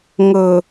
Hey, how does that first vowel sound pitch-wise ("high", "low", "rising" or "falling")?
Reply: low